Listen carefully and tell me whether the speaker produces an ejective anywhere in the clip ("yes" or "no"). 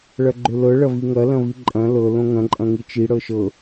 yes